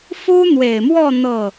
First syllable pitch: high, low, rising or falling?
high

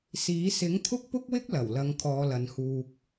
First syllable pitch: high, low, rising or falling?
rising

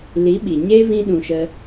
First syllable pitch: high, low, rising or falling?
rising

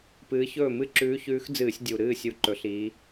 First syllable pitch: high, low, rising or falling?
rising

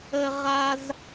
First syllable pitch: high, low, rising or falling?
high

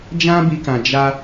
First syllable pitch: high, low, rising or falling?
high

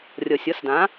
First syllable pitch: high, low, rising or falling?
low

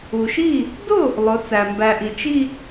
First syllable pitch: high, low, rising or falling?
low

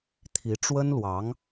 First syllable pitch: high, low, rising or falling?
rising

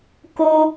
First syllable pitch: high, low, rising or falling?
high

